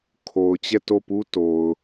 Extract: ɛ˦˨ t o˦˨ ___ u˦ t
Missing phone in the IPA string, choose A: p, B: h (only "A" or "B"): A